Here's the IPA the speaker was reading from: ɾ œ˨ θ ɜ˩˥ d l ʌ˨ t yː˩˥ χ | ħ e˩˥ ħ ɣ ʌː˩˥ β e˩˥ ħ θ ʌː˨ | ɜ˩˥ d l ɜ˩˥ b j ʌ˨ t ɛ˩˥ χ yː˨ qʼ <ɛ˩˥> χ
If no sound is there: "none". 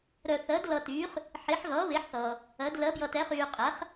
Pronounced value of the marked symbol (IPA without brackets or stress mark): ɛ˩˥